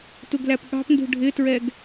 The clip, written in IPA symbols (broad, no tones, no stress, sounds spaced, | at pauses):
t u ɡ l æ p ɠ ɑ̤ p n d ṳ ɖʱ ɪ t ɹ ɛ ɡ